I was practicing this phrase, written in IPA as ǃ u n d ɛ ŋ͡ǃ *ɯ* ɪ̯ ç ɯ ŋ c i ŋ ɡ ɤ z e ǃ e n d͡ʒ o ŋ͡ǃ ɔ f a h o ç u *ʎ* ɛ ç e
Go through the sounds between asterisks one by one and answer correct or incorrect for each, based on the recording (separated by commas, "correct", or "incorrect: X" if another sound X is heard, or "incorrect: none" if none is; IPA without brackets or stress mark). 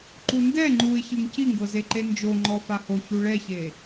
incorrect: u, incorrect: ɭ